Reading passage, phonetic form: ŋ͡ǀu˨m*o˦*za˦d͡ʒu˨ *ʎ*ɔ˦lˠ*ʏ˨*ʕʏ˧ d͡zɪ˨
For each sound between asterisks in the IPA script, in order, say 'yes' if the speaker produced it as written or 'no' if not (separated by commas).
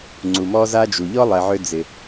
no, yes, no